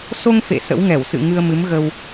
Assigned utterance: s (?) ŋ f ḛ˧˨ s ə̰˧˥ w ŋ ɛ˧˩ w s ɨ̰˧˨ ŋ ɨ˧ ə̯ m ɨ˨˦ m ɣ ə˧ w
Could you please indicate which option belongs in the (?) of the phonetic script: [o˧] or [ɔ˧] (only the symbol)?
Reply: o˧